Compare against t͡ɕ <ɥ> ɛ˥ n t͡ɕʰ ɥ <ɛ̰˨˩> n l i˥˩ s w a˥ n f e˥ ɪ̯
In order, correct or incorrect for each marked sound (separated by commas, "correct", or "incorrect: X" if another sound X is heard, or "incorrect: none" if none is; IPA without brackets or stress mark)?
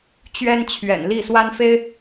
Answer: correct, correct